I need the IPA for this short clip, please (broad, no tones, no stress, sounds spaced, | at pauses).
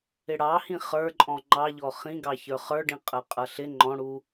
ɪ ɽ ɑ h ĩ χ ə˞ ǃʼ ɔ̃ ŋ͡ǃ ɑ ʎ ɔ χ ĩ ɡ ɑ ç ə˞ χ ə˞ ɖ ĩ qʼ ə qʼ ʌ ɬ ɪ ŋ͡ǃ ɔ̃ ɽ u